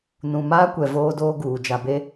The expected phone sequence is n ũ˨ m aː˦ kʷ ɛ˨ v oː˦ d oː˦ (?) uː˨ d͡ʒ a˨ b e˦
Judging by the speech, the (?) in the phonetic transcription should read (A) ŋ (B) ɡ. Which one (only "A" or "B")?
B